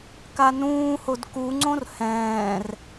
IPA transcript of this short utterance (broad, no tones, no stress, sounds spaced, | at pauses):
k a n ũː h o d k u ŋ͡ǀ õ r h ɛ̃ː r